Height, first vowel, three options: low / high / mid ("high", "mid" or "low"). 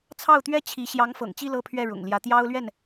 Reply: low